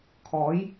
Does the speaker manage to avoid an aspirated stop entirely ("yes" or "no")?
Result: no